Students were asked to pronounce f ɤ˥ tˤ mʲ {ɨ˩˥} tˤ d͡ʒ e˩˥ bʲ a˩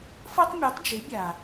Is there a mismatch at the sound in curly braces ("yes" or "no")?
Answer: yes